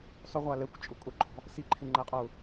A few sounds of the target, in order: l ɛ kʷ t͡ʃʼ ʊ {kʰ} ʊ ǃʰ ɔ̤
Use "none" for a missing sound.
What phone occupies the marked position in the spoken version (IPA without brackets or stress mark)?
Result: kʼ